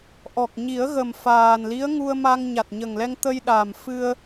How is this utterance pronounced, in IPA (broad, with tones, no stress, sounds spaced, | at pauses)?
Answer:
ʔ ɔ˨˩ k̚ ɲ i˨˩˦ ə̯ ɣ ə˨˩ m f aː˨˩ n l i˧˥ ə̯ ŋ u˧ ə̯ m a˧ ŋ ɲ a˨˩ t̚ ɲ ə˨˩ ŋ l ɛ˧ ŋ t̪ ə˧ j ɗ a˨˩ m f ɨ˧ ə̯